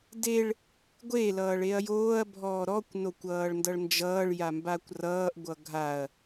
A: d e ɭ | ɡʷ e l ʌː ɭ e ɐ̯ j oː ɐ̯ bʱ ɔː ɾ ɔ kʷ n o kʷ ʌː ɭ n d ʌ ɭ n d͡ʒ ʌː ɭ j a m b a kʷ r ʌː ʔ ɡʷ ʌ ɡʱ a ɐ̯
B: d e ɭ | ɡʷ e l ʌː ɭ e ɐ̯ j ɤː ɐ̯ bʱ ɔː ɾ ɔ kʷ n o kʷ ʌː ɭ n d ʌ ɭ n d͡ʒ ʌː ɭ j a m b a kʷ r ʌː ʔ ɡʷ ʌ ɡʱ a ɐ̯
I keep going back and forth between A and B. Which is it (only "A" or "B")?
A